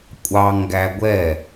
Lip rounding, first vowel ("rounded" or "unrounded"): unrounded